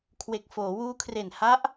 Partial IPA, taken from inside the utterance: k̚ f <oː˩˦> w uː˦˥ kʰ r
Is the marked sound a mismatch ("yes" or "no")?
no